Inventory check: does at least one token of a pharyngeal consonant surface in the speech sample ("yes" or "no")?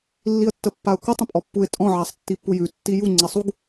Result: yes